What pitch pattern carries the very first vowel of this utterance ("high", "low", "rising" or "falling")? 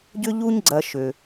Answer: high